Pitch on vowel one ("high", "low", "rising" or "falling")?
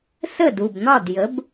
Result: falling